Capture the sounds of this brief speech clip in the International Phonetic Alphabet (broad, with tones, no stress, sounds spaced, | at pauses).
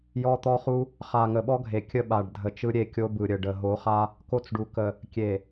j ɔ˦ t̪ ɔ˦ χ u˦ | χ a˨ ŋ ə˨ ɓ ɔ˦ ɡʱ e˨ kʲ ə˦ ɓ a˨ ɖ dʱ ə˨ t͡ʃ ɯ˦ ɾʲ e˦˨ kʲ o˦ b ɯ˨ ɾʲ ə˨ ɖ ə˨ ɦ o˨˦ χ a˦ | k o˦ t͡s ɖ u˨ k ə˨ | kʲ e˨